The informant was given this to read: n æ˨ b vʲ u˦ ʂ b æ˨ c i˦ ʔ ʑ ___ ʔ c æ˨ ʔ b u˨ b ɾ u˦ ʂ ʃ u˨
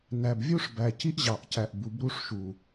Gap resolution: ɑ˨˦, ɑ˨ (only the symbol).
ɑ˨